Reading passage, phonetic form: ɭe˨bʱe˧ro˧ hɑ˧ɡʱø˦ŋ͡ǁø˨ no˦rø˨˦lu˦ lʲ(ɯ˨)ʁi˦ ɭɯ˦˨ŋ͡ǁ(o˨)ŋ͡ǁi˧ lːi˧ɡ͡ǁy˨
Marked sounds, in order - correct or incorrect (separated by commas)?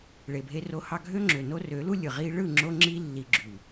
correct, incorrect